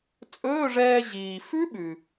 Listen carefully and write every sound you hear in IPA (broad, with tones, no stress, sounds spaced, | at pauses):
t͡sʼ ɵː˧˥˧ ʐ ɛː˧ ʑ iː˩ f ʉ˦˥ ɓ ʉ˩